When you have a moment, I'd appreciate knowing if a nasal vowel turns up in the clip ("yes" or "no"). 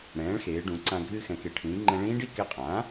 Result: yes